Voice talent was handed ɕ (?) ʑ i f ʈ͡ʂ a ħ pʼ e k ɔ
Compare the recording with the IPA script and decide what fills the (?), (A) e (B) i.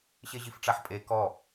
A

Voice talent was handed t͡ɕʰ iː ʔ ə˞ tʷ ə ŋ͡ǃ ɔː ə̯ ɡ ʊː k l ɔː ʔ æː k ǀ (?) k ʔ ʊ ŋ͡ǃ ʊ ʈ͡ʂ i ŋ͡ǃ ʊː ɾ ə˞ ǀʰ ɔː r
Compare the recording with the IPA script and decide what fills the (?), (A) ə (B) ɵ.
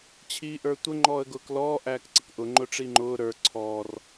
A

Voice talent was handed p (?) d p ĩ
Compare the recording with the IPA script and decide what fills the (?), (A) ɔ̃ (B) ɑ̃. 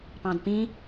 B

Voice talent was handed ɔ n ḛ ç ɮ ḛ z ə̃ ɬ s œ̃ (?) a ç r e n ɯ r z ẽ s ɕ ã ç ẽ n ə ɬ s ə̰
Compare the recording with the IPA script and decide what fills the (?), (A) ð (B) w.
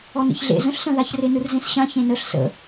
A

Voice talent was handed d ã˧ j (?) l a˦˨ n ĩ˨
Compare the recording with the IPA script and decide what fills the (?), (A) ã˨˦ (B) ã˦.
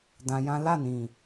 B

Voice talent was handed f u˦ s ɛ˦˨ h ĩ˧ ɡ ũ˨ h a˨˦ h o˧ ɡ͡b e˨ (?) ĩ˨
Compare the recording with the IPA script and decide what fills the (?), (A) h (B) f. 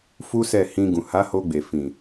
B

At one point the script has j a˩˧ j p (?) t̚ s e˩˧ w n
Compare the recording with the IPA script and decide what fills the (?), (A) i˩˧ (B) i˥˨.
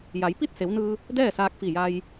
B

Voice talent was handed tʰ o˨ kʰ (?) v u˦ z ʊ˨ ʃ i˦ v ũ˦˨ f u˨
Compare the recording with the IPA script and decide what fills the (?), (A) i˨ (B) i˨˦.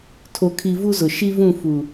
A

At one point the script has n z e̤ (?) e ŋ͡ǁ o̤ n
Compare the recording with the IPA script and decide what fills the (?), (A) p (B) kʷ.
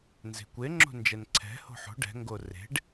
B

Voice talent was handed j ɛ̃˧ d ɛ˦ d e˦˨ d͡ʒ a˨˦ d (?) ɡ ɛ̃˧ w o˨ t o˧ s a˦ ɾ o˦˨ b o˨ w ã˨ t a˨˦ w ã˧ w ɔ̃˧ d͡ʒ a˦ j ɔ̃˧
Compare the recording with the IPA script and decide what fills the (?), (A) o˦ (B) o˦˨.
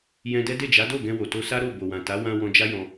B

